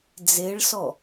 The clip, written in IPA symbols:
d͡z e ɭ s ɔ

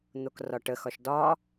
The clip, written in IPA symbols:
n̪ o k r ɒ ʈ ə x ɒ ʃ d ɒ

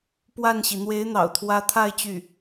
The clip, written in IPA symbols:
p w a˥˩ n ɕ i˩ n̪ w e˧˥ ɪ̯ n̪ ɑ̰˨˩ ʊ̯ t̪ʰ w ä˧˥ t̪ʰ a˥˧ ɪ̯ t͡ɕ y˥˩

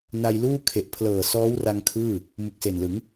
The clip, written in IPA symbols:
n a˧ j l uː˥˩ kʰ e˨˩ ʔ pʰ l ɤː˨˩ s ɔː˦˥ w r a˧ ŋ kʰ ɯː˥˩ | m u˨˩ k̚ s e˨˩ n l ɯ˩˦ ŋ

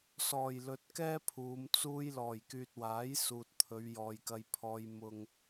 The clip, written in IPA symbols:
s ɔː˨˩ j l ɵ˨ t̚ k ɛː˥ pʰ uː˨˧ m t͡s uː˥ j l ɔː˨˩ j k yː˨ t̚ w aː˨˥ j s uː˨ t̚ t̪ʰ ɵ˨˧ ɥ j ɔː˨ j k ɐ˧ j pʰ ɔː˧ j m ʊ˨ ŋ

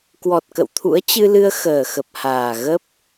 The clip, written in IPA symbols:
k w ɔ˨˩ t̚ k ə̰˧˨ w t̪ʰ ṵ˧˥ ə̯ t͡ɕ ɨ˧ l ɨ˧ ə̯ x əː˨˩ x ə˨˩ p̚ h aː˨˩ ɣ ə˦˥ p̚

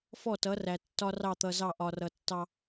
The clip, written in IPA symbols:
f ɔ˦˨ t ʌ˨˦ r æ˨ tː ɒ˦ r ɑ˦˨ t̪ ʌ˨ z ɑ˦˨ ʔ ɒ˨ r ʌ˨ tː ɑ˦

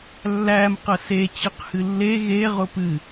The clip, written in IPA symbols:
lː æ m q ə s e t͡ɕ ɨ q h ɨ lː e ɣ e ʁ ʊ p ɨ

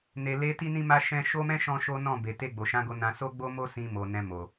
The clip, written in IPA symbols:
n e˨ l e˧ t i˦ n ĩ˦ m a˦ ʃ ɛ̃˦ ʃ o˦ m ɛ̃˦ ʃ ɔ̃˦ ʃ o˦ n ɔ̃˦˨ b e˨ t e˧ ɡ͡b o˨ ʃ ã˨˦ ɡ o˧ n ã˧ s o˦ ɡ͡b o˦ m o˦ s ĩ˧ m o˨ n ɛ̃˧ m o˨

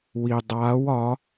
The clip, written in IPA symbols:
w i dˤ aː w ɒ

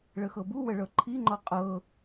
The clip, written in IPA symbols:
ɭ ə x ɤ b u w ə ɭ ɤ ǃʰ i ŋ͡ǃ ɔ qʼ ɤ

